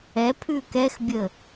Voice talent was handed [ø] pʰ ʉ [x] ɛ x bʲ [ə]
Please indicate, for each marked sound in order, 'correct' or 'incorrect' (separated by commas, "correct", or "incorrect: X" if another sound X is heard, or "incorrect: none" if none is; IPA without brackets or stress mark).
incorrect: ɛ, incorrect: k, correct